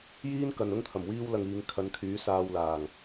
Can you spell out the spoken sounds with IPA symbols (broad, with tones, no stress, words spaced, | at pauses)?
jiː˥nkɐ˨n ʊ˥ŋt̪ʰɐ˨˩m wiː˥wlɐ˧ŋiː˨˧ŋ kʰɐ˨˧nkʰyː˨˥ saː˧wlaː˨˩ŋ